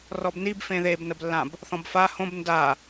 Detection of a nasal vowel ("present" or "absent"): present